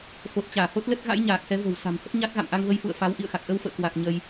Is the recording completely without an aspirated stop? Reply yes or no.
yes